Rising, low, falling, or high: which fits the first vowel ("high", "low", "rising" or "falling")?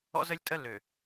high